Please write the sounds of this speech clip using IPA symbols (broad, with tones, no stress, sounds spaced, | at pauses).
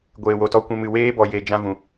ɡʷ eː˨ w o˨ t ɔ˧ kʷ ɛ̃˧ m ɨ˨ w eː˦ b ɔ˨ j e˨ d͡ʒ ã˧ v ũ˨